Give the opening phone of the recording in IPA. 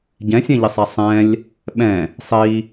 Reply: ɟ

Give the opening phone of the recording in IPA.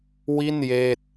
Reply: w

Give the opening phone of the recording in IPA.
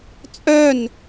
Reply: t͡sʼ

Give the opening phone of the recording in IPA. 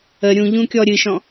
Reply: ə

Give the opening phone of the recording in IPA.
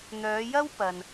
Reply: n̪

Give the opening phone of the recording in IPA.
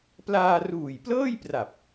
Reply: p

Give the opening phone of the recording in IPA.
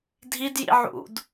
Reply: dʱ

